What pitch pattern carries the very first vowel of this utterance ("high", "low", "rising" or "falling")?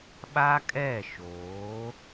high